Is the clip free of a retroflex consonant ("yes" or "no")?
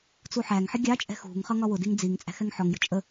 yes